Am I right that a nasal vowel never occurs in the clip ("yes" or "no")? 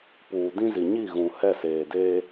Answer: no